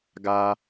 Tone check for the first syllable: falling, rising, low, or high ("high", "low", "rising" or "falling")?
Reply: high